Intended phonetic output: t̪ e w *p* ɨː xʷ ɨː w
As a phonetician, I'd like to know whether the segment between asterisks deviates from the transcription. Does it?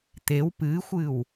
no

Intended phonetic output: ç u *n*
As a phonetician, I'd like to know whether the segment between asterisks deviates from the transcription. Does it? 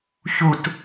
yes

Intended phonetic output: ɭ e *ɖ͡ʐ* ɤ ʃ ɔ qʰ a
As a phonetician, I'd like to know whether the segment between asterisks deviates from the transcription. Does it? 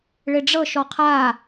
no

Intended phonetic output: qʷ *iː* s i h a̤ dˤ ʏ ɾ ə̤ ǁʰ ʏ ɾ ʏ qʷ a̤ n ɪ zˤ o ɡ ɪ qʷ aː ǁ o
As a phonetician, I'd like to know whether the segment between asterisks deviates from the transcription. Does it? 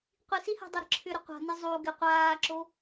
yes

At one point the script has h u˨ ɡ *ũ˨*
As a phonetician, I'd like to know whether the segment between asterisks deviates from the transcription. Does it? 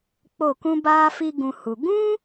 yes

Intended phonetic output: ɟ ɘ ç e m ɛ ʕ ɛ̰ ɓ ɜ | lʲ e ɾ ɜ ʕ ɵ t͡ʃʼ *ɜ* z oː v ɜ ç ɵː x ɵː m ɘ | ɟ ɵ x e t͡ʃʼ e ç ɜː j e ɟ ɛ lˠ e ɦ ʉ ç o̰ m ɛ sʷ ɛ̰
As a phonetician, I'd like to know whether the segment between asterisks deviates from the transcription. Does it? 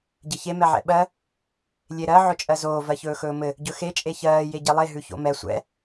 no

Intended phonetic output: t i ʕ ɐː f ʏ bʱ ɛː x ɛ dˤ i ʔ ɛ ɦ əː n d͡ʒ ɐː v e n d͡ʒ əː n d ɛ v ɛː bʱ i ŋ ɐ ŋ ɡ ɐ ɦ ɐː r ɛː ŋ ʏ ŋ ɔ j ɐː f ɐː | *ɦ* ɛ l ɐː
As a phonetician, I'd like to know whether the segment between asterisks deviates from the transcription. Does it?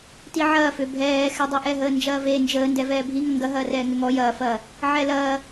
yes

